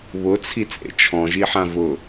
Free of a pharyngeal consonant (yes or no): no